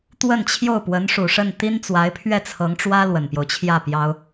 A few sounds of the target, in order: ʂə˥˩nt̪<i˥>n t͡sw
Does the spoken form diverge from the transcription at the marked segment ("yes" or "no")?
no